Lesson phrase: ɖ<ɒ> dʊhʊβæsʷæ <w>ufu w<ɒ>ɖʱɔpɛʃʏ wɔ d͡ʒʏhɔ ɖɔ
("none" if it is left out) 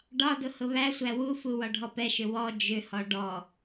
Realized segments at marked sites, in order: ɒ, w, ɒ

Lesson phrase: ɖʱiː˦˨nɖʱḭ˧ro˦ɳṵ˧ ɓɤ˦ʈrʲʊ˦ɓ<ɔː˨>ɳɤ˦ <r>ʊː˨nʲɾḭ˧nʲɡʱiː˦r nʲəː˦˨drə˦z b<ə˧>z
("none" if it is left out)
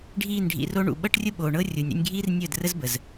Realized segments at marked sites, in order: oː˨, rʲ, ə˨

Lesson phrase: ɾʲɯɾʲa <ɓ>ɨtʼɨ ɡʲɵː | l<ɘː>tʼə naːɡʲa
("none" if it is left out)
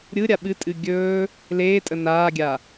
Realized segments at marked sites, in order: ɓ, eː

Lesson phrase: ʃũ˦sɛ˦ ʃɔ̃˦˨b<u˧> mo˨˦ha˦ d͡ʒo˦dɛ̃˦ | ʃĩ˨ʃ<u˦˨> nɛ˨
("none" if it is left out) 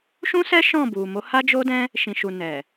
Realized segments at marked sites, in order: u˨, u˨

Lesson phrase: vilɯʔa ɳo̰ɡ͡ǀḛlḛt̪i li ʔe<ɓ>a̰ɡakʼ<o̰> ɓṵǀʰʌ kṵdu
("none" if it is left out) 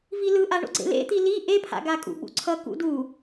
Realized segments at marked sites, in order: pʰ, ṵ

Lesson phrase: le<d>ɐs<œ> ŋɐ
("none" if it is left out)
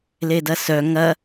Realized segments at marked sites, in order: d, œ

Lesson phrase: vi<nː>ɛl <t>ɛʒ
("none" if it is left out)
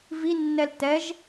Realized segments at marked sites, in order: nː, t

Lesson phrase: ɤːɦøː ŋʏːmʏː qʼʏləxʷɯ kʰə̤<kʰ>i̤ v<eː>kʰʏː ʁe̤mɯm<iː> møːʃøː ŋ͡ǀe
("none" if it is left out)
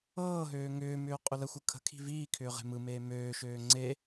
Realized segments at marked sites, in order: kʰ, iː, eː

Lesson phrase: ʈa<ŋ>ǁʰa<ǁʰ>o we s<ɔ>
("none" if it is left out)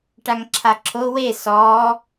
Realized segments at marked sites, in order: ŋ, ǁʰ, ɔ

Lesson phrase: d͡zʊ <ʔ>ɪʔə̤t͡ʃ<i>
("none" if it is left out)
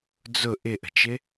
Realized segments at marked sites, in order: ʔ, ɪ

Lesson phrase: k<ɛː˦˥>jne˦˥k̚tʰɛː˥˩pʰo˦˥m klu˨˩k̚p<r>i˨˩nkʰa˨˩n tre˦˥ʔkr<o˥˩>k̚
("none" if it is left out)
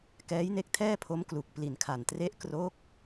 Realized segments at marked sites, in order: ɛː˦˥, l, o˦˥

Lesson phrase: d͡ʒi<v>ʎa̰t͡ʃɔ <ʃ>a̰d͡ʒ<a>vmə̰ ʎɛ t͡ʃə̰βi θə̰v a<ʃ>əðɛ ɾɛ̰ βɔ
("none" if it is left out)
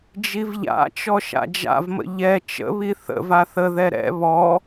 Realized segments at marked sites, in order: v, ʃ, a̰, θ

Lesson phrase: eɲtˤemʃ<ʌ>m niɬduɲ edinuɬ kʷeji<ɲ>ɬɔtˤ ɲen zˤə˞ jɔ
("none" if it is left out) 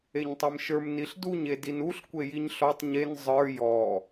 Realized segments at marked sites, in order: ə˞, ɲ

